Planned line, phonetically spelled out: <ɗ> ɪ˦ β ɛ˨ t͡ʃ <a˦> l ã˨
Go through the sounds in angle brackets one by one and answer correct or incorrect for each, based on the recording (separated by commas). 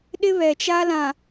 correct, correct